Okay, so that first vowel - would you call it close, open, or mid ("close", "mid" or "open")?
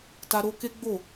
open